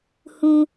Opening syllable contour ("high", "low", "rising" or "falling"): high